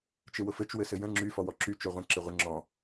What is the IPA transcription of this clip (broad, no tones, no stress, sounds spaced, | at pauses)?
t͡ʃ ɪ w ʊ f ɘ t͡ʃ w ɘ s ɘ j ə̃ ŋ͡ǁ y f ɔ w ɔ ǁ y t͡ʃ o ʁʷ ə̃ ǁ ɪ ʁʷ ɪ ŋ͡ǁ ɔ̃